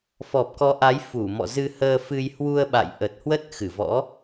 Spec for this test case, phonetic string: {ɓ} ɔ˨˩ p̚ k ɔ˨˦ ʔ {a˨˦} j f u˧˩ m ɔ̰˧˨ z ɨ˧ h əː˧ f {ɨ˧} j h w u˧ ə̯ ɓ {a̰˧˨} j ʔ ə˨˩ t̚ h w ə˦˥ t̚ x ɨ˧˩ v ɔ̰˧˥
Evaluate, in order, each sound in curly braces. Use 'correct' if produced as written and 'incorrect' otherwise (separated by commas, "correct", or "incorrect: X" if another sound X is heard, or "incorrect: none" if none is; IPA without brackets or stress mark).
incorrect: f, correct, correct, correct